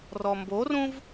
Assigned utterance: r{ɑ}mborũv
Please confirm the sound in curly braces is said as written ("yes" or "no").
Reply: no